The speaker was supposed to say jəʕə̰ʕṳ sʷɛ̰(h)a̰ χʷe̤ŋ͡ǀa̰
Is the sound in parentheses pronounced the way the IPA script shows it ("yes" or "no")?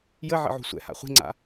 yes